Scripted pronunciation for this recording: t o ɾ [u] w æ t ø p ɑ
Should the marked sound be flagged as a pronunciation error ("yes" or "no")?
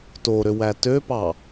yes